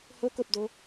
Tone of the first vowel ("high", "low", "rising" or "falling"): rising